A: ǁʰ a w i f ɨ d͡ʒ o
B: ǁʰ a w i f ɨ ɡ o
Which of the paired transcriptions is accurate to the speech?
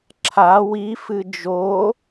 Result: A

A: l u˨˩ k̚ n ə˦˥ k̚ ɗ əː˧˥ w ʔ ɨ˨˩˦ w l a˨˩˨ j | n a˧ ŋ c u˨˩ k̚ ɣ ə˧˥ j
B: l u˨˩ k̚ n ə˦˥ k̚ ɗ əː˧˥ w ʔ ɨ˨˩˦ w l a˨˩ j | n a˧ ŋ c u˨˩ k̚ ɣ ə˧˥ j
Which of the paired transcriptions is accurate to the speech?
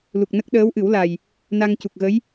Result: B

